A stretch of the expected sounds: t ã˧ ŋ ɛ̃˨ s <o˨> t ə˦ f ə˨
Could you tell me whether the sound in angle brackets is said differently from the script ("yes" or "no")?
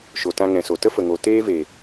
no